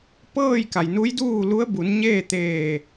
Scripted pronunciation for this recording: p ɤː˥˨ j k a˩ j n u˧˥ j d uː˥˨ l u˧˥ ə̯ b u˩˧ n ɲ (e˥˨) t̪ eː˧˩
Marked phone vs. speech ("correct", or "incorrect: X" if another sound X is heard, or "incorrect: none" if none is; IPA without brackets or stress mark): incorrect: eː˥˨